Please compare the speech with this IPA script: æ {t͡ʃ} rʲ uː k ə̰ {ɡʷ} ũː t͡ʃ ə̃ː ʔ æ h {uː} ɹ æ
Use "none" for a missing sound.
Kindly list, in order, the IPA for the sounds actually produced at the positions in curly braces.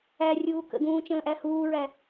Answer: none, ɡ, uː

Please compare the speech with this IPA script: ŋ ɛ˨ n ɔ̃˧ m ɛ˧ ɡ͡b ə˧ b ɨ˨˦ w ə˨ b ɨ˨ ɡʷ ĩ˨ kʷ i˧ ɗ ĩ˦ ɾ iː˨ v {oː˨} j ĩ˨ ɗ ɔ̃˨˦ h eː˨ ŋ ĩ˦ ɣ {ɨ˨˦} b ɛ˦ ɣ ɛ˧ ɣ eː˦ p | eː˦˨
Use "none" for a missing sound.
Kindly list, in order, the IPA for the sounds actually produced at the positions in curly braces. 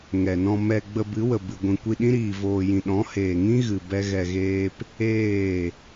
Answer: oː˨, ɨ˨

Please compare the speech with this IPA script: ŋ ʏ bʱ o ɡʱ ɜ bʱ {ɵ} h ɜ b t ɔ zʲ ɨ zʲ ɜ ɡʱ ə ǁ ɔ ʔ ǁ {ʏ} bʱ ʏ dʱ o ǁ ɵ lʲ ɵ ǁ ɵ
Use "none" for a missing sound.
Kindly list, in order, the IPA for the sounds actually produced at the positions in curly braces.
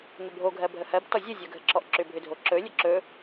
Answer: ə, ʏ

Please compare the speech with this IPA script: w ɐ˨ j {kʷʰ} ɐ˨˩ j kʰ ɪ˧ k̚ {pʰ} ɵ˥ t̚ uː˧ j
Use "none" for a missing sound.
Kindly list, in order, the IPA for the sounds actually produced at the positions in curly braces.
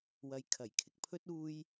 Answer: kʰ, pʰ

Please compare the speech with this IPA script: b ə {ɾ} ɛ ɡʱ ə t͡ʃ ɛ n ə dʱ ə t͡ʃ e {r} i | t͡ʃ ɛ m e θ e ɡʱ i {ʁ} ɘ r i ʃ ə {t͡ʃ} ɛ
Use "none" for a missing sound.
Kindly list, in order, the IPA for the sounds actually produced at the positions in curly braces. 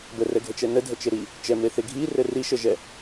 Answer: r, ɾ, r, ʒ

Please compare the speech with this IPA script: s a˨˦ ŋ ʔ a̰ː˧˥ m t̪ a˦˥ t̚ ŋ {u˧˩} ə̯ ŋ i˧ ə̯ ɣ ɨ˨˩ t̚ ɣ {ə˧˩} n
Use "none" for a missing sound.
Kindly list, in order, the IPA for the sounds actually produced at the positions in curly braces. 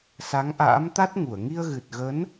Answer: u˧˩, ə˨˦

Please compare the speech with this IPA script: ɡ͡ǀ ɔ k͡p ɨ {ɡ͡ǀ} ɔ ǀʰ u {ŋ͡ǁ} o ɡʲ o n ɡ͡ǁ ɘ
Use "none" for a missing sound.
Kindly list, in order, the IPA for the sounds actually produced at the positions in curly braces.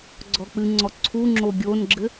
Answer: ŋ͡ǀ, ŋ͡ǁ

